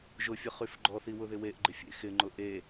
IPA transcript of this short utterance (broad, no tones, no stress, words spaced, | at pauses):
ʒʊfʲʊχyf ɡ͡ǃɔθiwʊðɪ weʔɡ͡ǃɪfʲḛ xɪŋ͡ǃʊ ʔe